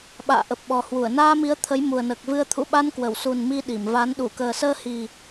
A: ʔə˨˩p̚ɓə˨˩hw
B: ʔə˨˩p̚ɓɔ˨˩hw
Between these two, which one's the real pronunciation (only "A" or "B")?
B